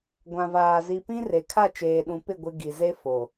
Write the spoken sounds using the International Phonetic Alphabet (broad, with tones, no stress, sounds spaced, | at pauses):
ɡʷ ã˨ v aː˨ z i˨ p ĩ˦ r e˨ kʰ a˦˨ t͡ʃ eː˨ ɗ ũ˨ p ɪ˦˨ ɡʷ ɪ˦ ɡ i˨ z e˦ f o˨